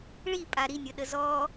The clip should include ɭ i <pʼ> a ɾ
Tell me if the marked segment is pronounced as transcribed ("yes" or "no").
yes